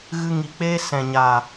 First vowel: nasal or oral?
oral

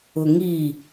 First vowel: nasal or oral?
oral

